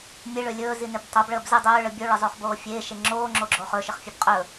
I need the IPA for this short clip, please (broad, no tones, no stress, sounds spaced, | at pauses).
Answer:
mʲ e ɭ ø lʲ ɵː z i n ɪ b tˤ o b ɭ əː b z ɪ dˤ ɵː ɭ ə bʲ o ɭ ə zˤ o χ b oː fʲ eː ʃ e ŋ͡ǁ oː ŋ͡ǁ o ɡ͡ǁ oː χ ɵ ʃ ɪ χ fʲ ɛ b qʼ ɵ